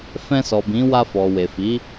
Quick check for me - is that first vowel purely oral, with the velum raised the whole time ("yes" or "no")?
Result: no